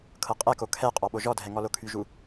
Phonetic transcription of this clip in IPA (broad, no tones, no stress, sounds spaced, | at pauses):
kʰ ɤ qʼ ɛ k o kʰ ɛ qʼ ɔ ɓ o ʒ ɔ dʱ ɛ ŋ ɔ l o kʰ y ʒ u